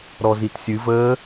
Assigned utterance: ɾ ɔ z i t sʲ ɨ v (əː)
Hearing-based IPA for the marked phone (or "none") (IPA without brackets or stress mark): əː